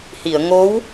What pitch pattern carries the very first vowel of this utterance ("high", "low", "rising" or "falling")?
low